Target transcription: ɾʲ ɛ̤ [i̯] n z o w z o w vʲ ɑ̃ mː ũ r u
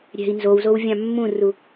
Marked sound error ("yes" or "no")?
no